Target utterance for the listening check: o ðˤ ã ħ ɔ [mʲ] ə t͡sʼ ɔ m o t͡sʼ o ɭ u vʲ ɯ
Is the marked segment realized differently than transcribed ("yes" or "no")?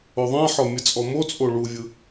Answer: no